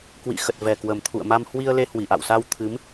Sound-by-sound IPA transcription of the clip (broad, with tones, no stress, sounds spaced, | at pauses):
k w ḭ˧˨ x ə˨˩ t̚ v ɛ˨˩ k w ə˨˩ m t̪ʰ ṵ˧˨ ə̯ m a˧ m h w i˧ ə̯ l e˧ h w i˧˩ ʔ a̰˧˨ w s a˧ w t̪ʰ ɨ˨˦ m